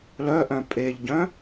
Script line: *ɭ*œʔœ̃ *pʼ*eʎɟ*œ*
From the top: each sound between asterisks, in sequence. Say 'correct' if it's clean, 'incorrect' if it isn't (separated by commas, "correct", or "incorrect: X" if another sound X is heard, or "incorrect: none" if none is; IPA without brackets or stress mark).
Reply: incorrect: l, correct, incorrect: œ̃